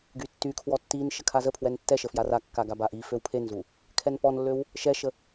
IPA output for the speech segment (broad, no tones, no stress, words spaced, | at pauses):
ɡytːykʰwɔ tːin ʃəkʰazəpʰwɛn tːɛʃə fjarakːa ɡabaʔiføw pʰenzu | kʰɛnpɔnlːøw | ʃɛʃə